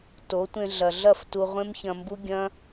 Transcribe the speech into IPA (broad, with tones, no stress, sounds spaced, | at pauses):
t o˨˦ tʷ ẽ˧ ɮ ɐ˨ ɮ ɐ˦˨ f t u˧ ʁʷ ẽ˦ m ç ɐ̃˧ m b u˦ ɡʲ ɐ̃˦